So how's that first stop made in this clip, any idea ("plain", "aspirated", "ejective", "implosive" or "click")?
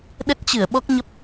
implosive